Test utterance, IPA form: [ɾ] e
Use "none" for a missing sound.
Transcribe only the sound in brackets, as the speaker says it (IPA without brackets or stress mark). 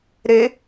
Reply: ɾ